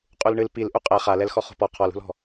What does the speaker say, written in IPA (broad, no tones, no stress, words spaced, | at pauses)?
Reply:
qʼulɳɨl pil ʔuqʼɛ χalɛlxɔ χo̤pɔ qʰɔlṳlɔ̤